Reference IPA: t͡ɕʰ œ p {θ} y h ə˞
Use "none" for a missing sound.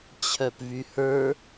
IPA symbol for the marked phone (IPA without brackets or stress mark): v